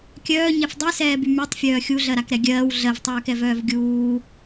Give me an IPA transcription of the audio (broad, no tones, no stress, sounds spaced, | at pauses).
kʲ œː ɲ ɛ f dˤ y s ɛː b y m y tˤ fʲ œː xʲ u ɮ ɜ ɾ a k ɾ ɛ ɡʲ ɜː w ɮ ɜ v tˤ œː k ɛ v œː v ɡʲ uː